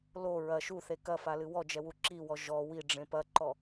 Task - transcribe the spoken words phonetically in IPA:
lo ɹɐ ʃuθe kɐfalɨ wɔd͡ʒɛwu ǁiwɔ ʒɔ wiɖ͡ʐẽ pɐǃɔ

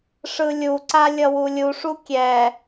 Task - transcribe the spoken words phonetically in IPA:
ʂɯlʲuǀa lʲʌwulʲuʂu kʲɛ

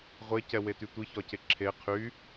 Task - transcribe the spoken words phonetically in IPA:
ʁʷecɛwety tʷiçɒce ǁʰe qʰy

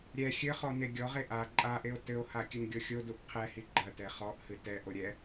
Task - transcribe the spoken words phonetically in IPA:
ɾʲɛ xʲɘχɔ neɡʲɔʁe ʔa ǃʼaʔeo̯ tɘo̯ha kʲɨnɡʲoxʲoduʔ qʰɛhi ɡ͡ǃɐtɛ χɔʔhɨ tɛʔo ɾʲɛ

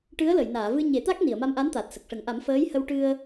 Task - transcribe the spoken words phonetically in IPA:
ʈɨ˧˥ə̯lə˨˩˨j naː˨˩˨vɨ˧ɲe˨˩˦t̪a˦˥k̚ ni˨˩˨ə̯ma˧mʔa˧˥n t̪a˨˩t̚ sə˨˩k̚ʂə˨˩˦ŋ ʔa˨˩˦mfəː˧˥jhə˧wʈɨ˧ə̯

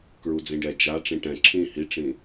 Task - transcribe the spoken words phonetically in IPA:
kɹud͡zĩɖɛ d͡ʒa ʈ͡ʂĩʈɛ̃ ǁʰĩ hiʈ͡ʂĩ

